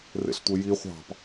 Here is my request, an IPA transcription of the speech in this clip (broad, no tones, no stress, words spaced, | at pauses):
rḛɬtʷeji χʷɑ̤p